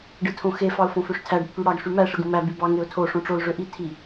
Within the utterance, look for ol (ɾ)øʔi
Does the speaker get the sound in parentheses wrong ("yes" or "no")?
yes